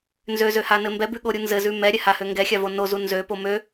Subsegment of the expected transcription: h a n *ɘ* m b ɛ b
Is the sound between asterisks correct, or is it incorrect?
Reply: correct